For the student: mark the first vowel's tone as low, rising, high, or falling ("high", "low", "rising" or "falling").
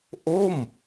falling